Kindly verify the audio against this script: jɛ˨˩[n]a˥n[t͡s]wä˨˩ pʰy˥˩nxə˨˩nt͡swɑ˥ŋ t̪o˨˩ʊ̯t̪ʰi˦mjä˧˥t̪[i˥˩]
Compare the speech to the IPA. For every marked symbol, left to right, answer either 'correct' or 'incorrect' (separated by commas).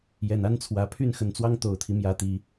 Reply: correct, incorrect, incorrect